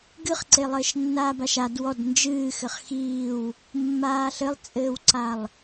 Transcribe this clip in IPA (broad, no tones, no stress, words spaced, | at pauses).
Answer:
ɡɨχǀe lˠɘːʃnːaːbaʃad wɔd nd͡ʒɨːxɘχ xiːw | mːaːɬɘlˠt͡sʼɘːwǀalˠ